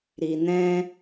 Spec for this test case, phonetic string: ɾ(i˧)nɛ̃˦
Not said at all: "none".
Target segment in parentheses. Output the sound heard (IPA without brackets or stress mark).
i˧